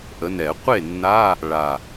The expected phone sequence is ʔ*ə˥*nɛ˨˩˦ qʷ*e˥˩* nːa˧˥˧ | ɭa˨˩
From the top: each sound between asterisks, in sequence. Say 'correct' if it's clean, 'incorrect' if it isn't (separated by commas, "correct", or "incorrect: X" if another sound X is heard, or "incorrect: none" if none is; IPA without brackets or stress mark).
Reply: incorrect: ə˨˦, correct